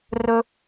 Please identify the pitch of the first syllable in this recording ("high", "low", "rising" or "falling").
low